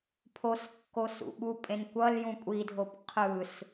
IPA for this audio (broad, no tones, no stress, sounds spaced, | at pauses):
pʰ o s kː o s ṵ ɓ u pʼ ẽ n kʷ ʌ l j ũ kʷʼ i dʱ o p qʰ ɯ s